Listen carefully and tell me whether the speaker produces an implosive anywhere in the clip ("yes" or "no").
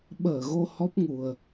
yes